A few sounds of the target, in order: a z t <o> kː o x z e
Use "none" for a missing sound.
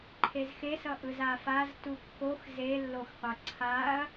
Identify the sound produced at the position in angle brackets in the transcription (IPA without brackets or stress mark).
u